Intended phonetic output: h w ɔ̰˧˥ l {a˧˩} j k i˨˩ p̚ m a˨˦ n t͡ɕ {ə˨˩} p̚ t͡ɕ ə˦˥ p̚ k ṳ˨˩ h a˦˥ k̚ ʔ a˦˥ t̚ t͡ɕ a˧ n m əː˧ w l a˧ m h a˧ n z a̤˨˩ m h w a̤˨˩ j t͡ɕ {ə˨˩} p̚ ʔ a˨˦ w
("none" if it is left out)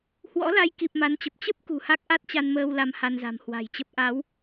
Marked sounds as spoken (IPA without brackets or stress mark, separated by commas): a˧, ə˨˩, ə˦˥